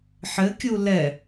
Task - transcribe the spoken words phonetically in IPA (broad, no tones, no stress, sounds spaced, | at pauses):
ħ ɘ kʲ u l ɛ